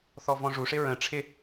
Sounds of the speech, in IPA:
θɔvɔ̃ʐuʂɪ ɹə̃ ʈ͡ʂʰɪ

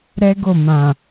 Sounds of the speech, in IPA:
ɾɛ˦ ɡo˦˨mã˨

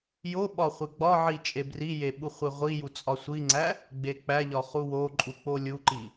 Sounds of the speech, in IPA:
jo ɓɒχʷeɡ͡bɒʕi t͡ʃʼebrije ɓuχʷeʁʷiju t͡sʼɒsʷiŋ͡ǀæ | ɡ͡bek͡pæʎɒ χuwoǃʼu k͡polʲuǃi

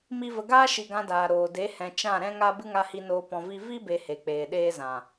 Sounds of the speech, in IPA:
mi˦və˧ ɡaː˦ʃi˨ ɡã˧daː˨ɾoː˨ de˨˦hɛ̃˨ t͡ʃã˦˨ɾɛ̃˦ŋa˦ bɨ˦ŋa˧hi˧noː˧ pɔ̃˧vi˦ vi˦ be˧he˨k͡peː˨ ɗeː˦zã˨

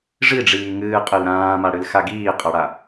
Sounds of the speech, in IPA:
ʐiɖ͡ʐiː ŋɨːqʼɨl ɾãːmaɽɨlxa ɡiːqʼʌɽa

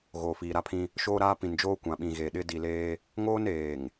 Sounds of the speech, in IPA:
ɣoː˨fiː˨ ɾa˦pʰĩ˦ | ʃoː˦ɾaː˦ pĩ˨nd͡ʒoː˦ kʷã˨ɓĩ˨ɣeː˨ ɗɪ˦ di˨leː˦ | ŋoː˦neː˨ŋ

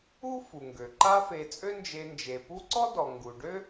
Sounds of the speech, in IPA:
u˥fu˩ŋɡø˩ ǃa˦fe˨ t͡sʼø˦nd͡ʒe˨nd͡ʒe˩ pu˦ǀɔ˥dɔ˩ ŋɡu˩ ɖø˥

